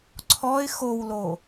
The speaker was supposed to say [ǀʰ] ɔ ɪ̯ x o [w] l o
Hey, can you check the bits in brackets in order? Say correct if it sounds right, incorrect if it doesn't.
correct, correct

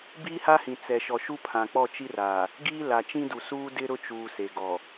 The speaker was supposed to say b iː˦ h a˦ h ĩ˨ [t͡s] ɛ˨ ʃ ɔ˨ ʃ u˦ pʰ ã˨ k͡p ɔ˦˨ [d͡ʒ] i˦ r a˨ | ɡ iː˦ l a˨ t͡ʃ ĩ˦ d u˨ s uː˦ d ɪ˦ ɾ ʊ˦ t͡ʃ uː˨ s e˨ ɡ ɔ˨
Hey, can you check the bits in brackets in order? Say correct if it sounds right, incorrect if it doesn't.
correct, incorrect: t͡ʃ

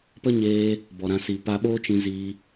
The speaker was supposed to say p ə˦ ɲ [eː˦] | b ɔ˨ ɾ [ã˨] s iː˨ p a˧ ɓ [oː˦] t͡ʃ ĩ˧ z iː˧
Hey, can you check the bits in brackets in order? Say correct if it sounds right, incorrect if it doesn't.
incorrect: eː˧, incorrect: ã˧, correct

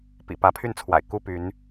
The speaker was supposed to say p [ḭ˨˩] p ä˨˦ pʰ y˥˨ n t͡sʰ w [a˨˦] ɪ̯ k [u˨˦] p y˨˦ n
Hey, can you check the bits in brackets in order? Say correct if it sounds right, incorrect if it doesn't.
correct, incorrect: a̰˨˩, incorrect: u˥˨

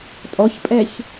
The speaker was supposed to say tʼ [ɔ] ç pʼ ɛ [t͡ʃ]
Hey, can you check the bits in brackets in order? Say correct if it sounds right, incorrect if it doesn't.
correct, incorrect: ç

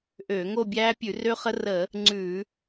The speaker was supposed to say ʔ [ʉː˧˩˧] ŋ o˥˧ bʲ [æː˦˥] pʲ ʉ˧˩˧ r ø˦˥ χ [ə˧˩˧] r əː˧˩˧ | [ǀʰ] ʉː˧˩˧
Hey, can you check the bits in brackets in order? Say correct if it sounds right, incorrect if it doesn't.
incorrect: øː˧˩˧, correct, incorrect: ə˦˥, incorrect: ŋ͡ǀ

